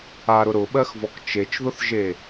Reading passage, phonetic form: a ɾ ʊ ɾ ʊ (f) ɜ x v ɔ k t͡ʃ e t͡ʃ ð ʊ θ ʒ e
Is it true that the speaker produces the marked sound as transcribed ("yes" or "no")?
no